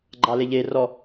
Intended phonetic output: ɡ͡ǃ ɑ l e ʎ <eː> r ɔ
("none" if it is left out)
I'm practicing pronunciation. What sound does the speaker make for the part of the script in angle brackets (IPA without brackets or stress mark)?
e